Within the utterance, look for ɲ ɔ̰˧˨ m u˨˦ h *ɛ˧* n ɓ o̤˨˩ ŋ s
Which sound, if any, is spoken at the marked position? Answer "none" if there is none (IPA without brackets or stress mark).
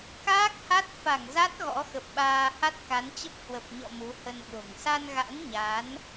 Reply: ə˧